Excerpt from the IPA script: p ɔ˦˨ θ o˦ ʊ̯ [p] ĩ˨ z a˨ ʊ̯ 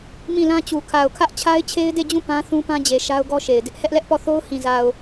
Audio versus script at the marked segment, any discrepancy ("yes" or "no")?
yes